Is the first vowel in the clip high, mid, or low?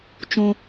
high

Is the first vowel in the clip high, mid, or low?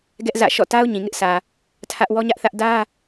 mid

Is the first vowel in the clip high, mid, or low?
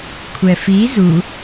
mid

